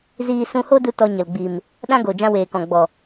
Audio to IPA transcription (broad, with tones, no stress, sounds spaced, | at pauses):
z iː˧ s ũ˧ h o˦ d u˧ t ɔ˧ ɲ ə˨ l ɡ͡b i˨ m | ɗ ã˦ ɡ o˨ d͡ʒ ã˧ w eː˨ k ɔ̃˨ ɡ͡b ɔ˨